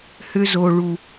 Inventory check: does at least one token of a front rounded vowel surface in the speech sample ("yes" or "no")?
yes